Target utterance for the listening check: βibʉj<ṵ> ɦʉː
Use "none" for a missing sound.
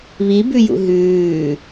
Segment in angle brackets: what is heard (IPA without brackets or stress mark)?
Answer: ṵ